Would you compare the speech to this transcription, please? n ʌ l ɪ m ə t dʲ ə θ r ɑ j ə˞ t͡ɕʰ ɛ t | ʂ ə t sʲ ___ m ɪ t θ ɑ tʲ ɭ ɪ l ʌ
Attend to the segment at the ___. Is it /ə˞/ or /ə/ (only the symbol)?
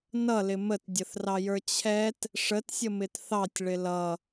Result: ə